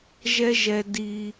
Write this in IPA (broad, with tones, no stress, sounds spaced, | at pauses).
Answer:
ʒ ɛ˦ ʒ ɛ˧ d i˧